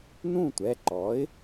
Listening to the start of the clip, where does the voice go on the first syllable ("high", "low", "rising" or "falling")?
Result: falling